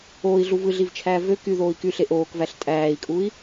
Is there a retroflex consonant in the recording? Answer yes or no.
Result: no